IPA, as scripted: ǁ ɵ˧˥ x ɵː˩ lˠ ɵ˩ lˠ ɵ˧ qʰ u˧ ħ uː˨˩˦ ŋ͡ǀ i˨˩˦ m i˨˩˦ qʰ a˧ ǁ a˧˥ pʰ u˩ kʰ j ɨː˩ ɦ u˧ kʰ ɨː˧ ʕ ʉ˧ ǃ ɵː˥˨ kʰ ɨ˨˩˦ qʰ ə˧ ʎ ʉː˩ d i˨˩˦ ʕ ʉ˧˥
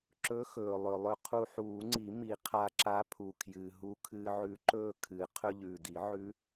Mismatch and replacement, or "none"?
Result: ə˧ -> ɵ˧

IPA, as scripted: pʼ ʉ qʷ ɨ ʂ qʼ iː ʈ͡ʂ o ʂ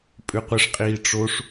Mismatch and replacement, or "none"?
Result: none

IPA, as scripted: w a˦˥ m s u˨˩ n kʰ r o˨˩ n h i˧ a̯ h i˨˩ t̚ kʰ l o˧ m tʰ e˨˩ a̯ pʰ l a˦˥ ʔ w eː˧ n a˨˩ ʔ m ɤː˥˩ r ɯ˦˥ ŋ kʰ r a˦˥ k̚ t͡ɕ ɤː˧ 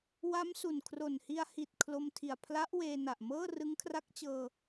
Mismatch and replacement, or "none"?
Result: e˨˩ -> i˨˩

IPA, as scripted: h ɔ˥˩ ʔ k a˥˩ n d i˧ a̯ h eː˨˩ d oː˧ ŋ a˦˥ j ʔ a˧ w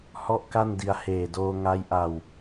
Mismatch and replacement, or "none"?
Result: none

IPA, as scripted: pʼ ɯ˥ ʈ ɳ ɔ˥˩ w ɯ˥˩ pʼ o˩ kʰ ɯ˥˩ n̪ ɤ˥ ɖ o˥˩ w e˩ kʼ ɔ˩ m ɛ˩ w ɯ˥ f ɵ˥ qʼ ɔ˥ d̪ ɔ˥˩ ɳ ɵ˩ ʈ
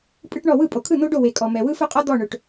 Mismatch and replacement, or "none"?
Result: ɤ˥ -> o˥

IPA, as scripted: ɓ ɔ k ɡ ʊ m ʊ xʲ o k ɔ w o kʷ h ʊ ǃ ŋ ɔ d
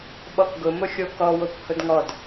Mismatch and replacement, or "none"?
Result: ǃ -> d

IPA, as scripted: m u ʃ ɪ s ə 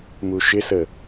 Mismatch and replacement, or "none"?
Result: none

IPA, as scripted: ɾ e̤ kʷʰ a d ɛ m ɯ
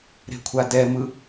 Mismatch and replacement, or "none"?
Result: none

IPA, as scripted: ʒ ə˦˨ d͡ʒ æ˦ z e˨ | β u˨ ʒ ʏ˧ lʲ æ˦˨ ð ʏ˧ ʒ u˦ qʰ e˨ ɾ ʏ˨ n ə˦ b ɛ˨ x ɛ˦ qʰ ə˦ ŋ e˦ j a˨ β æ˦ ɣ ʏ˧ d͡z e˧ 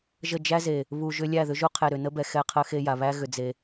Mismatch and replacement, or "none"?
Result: ŋ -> x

